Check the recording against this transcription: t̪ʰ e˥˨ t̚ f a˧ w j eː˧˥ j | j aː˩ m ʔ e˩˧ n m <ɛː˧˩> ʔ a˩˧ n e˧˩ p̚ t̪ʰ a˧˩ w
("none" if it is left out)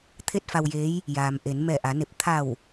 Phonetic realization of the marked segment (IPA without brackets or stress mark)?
ɛː˧˩